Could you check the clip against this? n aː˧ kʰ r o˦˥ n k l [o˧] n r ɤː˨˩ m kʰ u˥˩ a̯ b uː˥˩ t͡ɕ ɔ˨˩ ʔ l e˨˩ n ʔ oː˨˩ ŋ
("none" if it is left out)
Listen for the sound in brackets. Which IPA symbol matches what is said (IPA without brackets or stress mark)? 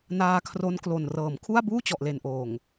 o˨˩